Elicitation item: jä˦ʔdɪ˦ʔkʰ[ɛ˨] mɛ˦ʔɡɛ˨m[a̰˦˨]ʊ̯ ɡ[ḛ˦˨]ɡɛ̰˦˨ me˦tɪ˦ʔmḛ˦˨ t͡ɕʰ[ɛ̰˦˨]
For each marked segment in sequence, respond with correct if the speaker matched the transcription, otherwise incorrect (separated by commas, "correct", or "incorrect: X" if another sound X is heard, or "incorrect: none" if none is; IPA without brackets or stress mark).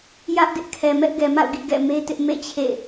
correct, correct, incorrect: ḭ˦˨, incorrect: ḛ˦˨